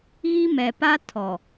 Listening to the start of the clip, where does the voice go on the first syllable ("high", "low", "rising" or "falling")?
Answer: high